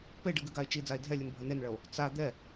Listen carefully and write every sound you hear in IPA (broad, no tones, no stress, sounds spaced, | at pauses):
p e ɖ ɨ ɡ ɨ ɡ a e̯ t͡ʃ i d͡z a e̯ dʱ ɛ lʲ ɨ n bʱ ɐ n e n ɭ ɐ o̯ | t͡s a d̪ ɛ